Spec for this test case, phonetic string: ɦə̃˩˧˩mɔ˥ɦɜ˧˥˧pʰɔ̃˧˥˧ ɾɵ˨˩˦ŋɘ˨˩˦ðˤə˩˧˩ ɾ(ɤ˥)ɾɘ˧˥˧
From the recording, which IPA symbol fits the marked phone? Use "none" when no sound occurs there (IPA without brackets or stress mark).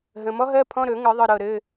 ɤ˥˨